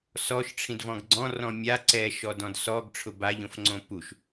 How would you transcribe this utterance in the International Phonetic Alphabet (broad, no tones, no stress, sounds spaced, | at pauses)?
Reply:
s ɔ ʃ ʈ͡ʂʰ ĩ d v ɔ̃ ɡ ɡ͡ǀ ɔ̃ r ɔ̃ mʲ a ǀ ɛ ʃ ɔ d ɔ̃ d s ɔ ɡ ʈ͡ʂʰ ʊ b a ʎ õ f ŋ͡ǀ õ p u ʃ